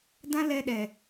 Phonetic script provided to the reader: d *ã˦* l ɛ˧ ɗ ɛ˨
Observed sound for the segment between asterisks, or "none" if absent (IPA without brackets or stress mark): ã˦